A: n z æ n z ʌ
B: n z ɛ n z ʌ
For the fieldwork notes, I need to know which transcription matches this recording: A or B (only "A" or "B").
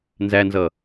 A